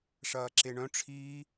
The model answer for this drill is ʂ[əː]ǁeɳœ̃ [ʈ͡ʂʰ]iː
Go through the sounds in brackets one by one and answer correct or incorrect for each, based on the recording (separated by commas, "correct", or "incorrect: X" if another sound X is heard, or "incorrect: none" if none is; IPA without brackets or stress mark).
incorrect: ɐː, correct